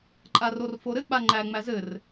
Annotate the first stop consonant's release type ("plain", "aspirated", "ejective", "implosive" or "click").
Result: click